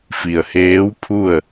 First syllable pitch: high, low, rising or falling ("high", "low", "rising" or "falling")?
low